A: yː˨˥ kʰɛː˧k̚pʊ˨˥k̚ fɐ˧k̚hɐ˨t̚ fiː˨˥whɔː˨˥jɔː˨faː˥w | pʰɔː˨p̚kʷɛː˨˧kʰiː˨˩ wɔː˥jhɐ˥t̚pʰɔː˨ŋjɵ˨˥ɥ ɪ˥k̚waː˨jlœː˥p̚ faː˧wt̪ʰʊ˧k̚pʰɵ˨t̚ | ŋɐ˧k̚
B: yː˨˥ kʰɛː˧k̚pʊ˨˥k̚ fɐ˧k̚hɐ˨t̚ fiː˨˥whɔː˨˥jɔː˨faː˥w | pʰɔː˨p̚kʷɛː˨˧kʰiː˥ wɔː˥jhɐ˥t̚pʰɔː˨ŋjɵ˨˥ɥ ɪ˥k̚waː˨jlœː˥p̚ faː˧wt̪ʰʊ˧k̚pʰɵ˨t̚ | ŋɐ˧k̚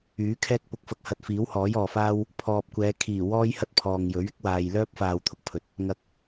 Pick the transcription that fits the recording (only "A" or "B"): A